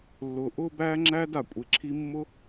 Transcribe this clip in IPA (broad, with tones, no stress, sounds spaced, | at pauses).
lː ʊː˧ ʔ ʊː˦ b æː˦ ŋ͡ǁ æː˦ d a˦˨ kʷʼ e˧ ǁʰ i˦ mː ʊ˦